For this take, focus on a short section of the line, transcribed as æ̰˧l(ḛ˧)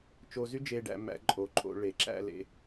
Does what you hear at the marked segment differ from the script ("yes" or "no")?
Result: yes